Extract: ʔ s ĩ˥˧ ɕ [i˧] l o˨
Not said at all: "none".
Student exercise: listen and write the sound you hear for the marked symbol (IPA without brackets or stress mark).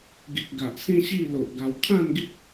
i˥˧